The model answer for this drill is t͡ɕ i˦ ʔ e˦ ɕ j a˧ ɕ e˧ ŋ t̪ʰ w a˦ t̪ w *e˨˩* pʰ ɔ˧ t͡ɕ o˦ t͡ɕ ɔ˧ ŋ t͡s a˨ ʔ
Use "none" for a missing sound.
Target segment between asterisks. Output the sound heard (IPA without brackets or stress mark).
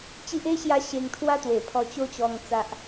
e˨˩